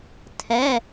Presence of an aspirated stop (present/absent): present